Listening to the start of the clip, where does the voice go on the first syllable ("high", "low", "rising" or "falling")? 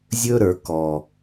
high